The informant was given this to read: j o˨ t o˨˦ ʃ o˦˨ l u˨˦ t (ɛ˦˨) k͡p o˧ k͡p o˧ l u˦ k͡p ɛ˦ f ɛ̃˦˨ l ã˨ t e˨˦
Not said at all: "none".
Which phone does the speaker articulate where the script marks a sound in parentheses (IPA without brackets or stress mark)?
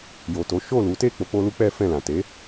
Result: e˦˨